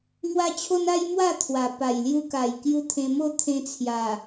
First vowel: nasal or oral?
oral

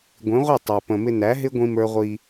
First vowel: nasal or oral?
nasal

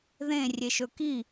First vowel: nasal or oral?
nasal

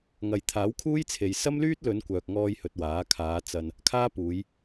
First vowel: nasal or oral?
oral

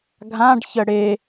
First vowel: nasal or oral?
nasal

